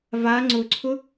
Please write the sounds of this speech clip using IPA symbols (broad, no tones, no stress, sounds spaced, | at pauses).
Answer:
v a ŋ͡ǀ ʊ ǀʰ ʊ